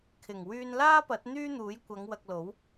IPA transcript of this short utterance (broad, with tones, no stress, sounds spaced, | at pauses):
kʰ ɪ˨˩ ŋ w yː˧ n l aː˥ p ɐ˨˥ t̚ n̪ yː˥ n̪ uː˨˥ j kʷ ɐ˨˧ ŋ w ɐ˧ k̚ l o˨˥ w